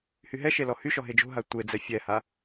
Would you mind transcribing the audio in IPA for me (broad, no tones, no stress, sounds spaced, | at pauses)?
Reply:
h y ɦ ɛ ʃ e l ɔ h y ʃ ɔ ɦ e d͡ʒ o̤ ɦ a tʷ e d͡z ɛ fʲ ɛ h a